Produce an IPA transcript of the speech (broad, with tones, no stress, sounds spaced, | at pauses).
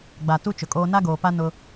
ɡ͡b a˨ t u˦ t͡ʃ ʊ˨ kʼ oː˦ n a˦ ɡ oː˨ p a˦ n ʊ˦